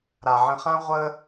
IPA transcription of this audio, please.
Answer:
ɾ a˨ ʕ ə̃˧ χ ã˦ ʁʷ əː˦

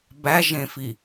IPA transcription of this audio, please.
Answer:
b æ ʒ ẽ f i

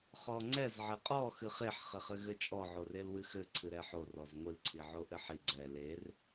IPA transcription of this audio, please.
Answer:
χ ɔ ŋ͡ǀ ɛ z ʕ ɘ qʼ ɔ x ɨ χ e ħ χ ɘ χ ɘ ɣ ɘ t͡ʃʼ ɔ ʕ o r e l w ɨ x ɘ ǀʰ ɨ ɾ ɛ ħ o r ɔ z ŋʷ ɨ l ǀʰ i ʕ o ʔ ɘ ħ i ɡ͡ǀ ɛ l e r

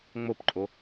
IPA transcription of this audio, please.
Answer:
ŋ͡m o p ǃʼ o

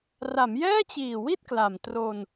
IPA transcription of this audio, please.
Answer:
r a˩˦ m j ɛː˥˩ t͡ɕ iː˨˩ w i˥˩ t̚ k l a˨˩ m t r o˧ n

